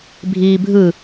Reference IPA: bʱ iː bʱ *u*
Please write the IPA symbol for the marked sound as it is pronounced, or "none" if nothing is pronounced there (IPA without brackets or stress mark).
ɯ